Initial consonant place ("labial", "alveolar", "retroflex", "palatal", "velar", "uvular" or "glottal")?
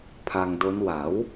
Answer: labial